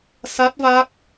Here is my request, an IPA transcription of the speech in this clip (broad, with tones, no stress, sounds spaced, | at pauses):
s a˦˥ t̚ v a˦˥ k̚